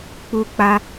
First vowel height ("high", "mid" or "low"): high